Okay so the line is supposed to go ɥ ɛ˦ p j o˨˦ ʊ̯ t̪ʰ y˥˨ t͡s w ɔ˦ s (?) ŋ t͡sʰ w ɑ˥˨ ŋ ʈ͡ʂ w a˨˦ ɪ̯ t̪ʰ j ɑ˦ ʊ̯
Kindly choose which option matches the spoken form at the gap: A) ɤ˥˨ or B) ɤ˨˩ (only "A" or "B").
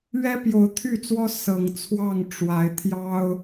B